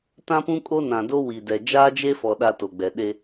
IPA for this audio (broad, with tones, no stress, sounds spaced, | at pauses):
t ã˦ p ũ˦ kʼ o˦ n ã˨ d o˦ w i˨ d ɛ˨ d͡ʒ aː˦ d͡ʒ e˦ f ɔ˨ ɗ a˦ t o˨ ɡ͡b ɛ˨ ɗ e˦